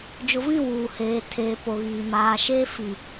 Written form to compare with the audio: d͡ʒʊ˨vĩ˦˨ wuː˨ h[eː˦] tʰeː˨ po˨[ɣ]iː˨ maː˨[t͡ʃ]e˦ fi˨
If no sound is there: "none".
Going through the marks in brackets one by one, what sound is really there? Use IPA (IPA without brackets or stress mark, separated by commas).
eː˨, ɣ, ʃ